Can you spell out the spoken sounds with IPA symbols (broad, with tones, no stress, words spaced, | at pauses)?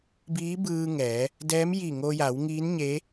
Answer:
biː˧˥bɯː˧ŋɛː˩˧ | dɛː˧˥mji˧˩ ŋo˧ja˩˧wŋiː˧˥nɲe˧˥